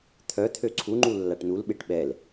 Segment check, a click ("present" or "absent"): present